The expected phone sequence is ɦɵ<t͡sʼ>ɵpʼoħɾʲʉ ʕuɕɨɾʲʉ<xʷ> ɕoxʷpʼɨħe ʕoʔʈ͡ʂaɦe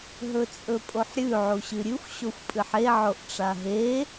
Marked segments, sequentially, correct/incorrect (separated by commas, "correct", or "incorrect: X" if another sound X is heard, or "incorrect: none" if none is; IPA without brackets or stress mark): correct, correct